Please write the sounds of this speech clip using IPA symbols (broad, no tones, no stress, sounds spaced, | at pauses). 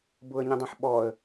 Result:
b ʊ ə̯ ɲ ĩ dˤ ẽ ħ ɓ ɔ ə̯